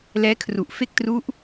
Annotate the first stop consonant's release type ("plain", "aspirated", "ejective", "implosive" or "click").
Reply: aspirated